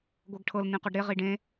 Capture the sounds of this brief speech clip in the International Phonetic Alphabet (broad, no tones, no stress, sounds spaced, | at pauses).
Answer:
ɡʷ ɤ ɡ ʈʰ ɤ l n ĩ q ɔ ɖ ɾ e ʁ i ɖ ẽ